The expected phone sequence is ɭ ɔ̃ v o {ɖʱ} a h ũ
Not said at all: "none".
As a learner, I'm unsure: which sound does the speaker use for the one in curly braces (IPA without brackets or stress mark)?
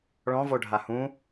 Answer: ɖʱ